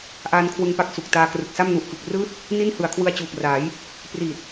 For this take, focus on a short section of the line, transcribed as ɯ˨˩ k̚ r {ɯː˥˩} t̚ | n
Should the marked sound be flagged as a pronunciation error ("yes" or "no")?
no